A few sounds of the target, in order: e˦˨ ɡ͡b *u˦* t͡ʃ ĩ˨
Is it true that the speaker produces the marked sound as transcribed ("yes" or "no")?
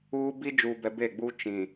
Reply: yes